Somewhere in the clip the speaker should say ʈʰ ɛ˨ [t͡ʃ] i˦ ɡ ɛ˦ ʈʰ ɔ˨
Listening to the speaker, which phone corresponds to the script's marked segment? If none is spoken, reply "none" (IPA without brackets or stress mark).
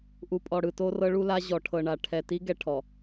t